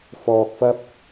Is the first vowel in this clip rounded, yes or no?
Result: yes